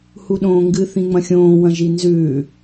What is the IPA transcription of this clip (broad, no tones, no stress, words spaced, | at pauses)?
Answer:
huɗõːŋɡɨ θĩŋ͡mɐ̃xʲõː wɐ̃ʒinzʉ